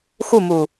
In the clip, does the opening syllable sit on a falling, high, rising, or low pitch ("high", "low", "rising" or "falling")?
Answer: falling